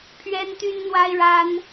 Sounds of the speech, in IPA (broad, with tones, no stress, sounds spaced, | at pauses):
pʰ ɥ ɛ˥ n t̪ y˥ n n̪ w a˥ ɪ̯ ɻ a˥ n